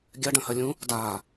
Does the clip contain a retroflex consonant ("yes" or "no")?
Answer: yes